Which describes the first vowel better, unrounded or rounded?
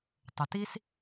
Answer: unrounded